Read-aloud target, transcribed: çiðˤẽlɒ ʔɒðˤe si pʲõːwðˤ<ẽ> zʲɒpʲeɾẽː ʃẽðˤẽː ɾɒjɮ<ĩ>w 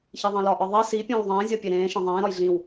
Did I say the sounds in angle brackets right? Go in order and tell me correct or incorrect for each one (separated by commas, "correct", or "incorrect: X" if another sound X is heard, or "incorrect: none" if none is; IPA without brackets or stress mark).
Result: incorrect: ẽː, correct